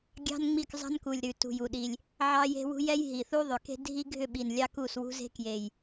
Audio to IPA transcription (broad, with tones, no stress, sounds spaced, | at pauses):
ɡʲ ɑ̤˦ n ŋ͡m i˦˨ k zˤ ɑ̤˦ n k u˨˩ lʲ ɾ ʉ˨˩ t ṳ˨˩ j u˨˩ ɗ i˨˩ lʲ | ʕ ɑ˦ j e̤˦ w ṳ˦ j ɛ˦ j ɦ i˨˩ θ u˦ ðˤ ʏ˨˩ k e̤˦ dʱ i˦ ɡʱ ʏ˦˨ ɓ i˨˩ n lʲ ɑ˦ k u˦˨ s w ṳ˦ z e̤˦ k j e˨˩ j